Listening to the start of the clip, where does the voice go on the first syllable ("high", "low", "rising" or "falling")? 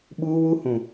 high